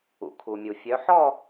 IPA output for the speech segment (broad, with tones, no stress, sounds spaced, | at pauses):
ṵ˩ kʰ u˩ mʲ u˩ fʲ œ˨˦ ħ ɔ˥˧